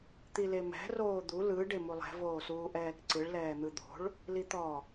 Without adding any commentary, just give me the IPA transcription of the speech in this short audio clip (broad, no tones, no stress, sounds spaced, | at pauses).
t̪ i l e m ɛ̤ r oː d̪ u l ɯ ɖ e m u lˠ ɛ̤ v oː s uː ʔ ɛː k ǀ ɯ ɭ l ɛː n̪ ɯ d̪ o̤ ɭ | l i t̪ ɔ